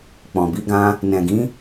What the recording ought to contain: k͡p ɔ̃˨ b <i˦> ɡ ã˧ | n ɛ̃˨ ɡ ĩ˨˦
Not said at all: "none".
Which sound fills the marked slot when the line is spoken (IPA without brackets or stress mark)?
i˨˦